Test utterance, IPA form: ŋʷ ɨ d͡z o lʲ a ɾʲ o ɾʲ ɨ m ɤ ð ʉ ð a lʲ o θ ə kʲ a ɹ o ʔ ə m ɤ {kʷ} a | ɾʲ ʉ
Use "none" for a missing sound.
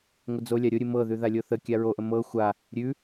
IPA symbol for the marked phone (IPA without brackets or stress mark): xʷ